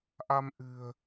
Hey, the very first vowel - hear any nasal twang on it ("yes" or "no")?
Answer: no